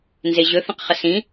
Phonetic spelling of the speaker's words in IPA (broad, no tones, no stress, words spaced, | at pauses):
nzeʑɵθə̃q χəsĩ